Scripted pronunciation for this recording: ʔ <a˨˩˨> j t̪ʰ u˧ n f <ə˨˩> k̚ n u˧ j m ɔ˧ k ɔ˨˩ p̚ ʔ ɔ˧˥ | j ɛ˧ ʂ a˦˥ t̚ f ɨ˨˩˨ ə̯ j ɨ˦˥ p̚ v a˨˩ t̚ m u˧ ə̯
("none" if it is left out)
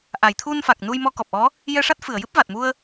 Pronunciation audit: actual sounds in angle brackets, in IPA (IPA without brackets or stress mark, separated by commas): a˨˩˨, a˨˩